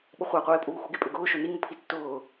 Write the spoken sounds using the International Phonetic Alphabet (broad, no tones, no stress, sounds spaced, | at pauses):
ɓ ʊ χʷ a qʷ eː pʼ uː x u ɡ e pʼ ʏ ɡ ʊː ʃ ʊ n i ŋ ʊ pʰ i tː ʊː